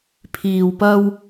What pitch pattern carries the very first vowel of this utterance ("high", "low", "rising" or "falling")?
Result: low